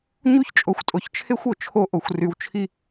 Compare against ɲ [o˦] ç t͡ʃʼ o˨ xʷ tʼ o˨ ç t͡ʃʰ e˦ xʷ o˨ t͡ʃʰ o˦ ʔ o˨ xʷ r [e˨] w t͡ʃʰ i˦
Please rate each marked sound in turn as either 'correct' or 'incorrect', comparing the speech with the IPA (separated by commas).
incorrect, incorrect